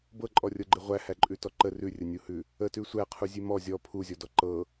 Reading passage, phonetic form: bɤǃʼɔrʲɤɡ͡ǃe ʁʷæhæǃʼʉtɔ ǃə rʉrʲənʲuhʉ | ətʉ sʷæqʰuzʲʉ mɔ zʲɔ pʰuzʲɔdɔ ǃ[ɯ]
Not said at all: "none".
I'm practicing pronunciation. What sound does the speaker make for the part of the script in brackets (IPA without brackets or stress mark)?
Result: ɤ